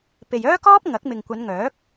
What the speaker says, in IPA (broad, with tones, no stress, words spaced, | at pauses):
pe˨jœː˥kɔː˥p̚ ŋɐ˨˥k̚mɪ˨ŋkʷɐ˨˧nŋœː˨˥k̚